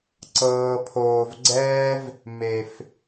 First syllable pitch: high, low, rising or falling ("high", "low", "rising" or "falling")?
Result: low